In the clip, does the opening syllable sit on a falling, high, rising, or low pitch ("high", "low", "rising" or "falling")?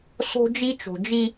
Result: high